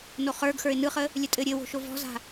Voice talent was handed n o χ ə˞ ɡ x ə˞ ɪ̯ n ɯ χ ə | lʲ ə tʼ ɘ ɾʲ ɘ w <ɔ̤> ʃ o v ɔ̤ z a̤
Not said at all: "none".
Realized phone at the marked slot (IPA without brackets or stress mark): o̤